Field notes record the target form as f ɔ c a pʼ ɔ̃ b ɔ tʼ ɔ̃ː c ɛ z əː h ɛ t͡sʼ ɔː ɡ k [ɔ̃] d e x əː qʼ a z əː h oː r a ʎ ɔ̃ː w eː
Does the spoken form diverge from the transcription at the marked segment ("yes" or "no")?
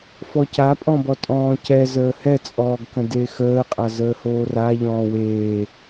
yes